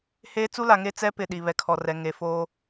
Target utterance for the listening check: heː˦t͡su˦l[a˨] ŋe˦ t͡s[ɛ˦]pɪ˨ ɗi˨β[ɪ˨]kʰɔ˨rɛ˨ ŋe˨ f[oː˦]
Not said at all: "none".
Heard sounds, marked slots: a˨, ɛ˦, ɛ˨, oː˦

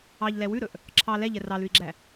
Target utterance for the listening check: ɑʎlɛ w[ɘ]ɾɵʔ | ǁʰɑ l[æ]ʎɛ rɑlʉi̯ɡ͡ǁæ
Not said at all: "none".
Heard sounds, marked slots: ʉ, ɛ

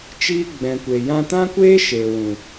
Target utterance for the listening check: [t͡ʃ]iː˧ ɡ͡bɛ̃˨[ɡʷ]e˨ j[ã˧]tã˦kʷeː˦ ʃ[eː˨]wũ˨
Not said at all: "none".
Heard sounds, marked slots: t͡ʃ, kʷ, ã˧, eː˨

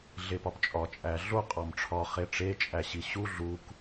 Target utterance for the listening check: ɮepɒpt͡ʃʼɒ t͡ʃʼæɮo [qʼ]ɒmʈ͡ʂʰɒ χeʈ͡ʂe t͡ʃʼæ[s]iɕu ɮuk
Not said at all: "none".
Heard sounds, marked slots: qʼ, ɕ

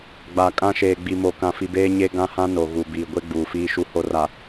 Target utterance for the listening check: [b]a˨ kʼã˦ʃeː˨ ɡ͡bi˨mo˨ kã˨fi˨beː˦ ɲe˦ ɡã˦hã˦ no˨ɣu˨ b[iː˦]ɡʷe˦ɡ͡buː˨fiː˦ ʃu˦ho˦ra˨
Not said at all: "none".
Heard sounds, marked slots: ɡ͡b, iː˨

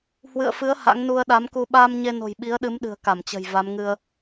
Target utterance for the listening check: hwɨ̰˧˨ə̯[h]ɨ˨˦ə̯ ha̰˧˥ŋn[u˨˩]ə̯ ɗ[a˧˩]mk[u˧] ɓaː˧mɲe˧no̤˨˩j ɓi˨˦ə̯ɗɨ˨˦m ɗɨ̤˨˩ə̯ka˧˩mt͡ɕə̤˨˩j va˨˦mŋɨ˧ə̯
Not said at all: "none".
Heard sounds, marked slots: f, u˧, a˨˦, u˧

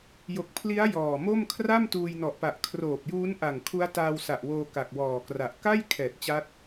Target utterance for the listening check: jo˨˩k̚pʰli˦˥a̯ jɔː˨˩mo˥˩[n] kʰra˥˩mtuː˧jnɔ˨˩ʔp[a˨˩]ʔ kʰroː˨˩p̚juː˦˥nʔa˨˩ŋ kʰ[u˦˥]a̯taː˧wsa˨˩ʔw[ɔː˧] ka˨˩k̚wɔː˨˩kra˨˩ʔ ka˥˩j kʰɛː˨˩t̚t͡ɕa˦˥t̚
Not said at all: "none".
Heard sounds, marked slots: m, a˨˩, u˦˥, oː˧

